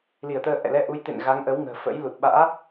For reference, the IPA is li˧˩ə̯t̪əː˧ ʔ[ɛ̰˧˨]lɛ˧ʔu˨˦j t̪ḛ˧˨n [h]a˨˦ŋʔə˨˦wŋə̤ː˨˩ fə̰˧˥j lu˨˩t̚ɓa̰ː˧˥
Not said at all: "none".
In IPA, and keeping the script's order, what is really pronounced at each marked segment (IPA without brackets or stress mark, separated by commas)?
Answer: ɛ̰˧˨, ɣ